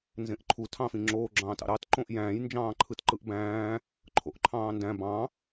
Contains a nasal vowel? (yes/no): yes